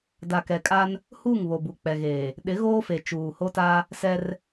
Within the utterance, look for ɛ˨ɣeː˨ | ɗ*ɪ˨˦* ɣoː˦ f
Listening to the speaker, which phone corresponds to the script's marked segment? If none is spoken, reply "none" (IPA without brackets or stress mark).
ɪ˨˦